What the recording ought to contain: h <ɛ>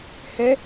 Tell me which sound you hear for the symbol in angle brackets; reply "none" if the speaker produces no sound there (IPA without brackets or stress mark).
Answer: ɛ